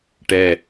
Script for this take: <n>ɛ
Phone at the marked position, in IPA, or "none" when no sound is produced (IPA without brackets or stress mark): ʈ